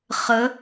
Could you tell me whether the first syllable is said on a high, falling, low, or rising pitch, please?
rising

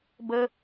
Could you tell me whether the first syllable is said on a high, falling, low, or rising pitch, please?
high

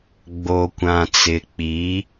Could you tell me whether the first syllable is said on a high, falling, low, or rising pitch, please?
low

